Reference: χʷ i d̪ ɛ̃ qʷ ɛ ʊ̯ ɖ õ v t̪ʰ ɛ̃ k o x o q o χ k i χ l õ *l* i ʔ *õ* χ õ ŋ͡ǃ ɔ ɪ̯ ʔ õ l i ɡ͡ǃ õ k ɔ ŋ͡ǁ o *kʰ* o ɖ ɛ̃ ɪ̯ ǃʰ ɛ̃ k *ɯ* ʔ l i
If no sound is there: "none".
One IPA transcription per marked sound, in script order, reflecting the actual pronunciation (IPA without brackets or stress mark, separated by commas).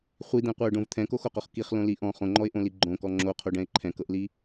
l, ɔ̃, qʰ, ɤ